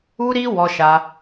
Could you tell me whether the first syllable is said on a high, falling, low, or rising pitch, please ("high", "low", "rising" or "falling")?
high